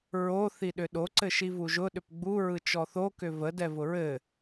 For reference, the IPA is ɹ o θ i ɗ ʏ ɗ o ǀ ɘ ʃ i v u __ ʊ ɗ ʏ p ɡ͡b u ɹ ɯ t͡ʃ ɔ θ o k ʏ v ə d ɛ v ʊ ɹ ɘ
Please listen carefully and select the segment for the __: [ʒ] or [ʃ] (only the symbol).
ʒ